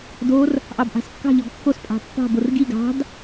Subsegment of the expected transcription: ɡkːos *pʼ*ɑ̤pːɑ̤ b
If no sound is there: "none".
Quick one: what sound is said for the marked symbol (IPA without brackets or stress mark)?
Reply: pʼ